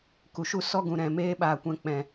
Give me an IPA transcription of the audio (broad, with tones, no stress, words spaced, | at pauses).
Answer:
ku˨ʃu˦ sɔ˦ɡũ˨ɾɛ̃˨ meː˦ɓaː˨kʷɛ̃˧k͡pɛ̃˨